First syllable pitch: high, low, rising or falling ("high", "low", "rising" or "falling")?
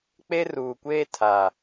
high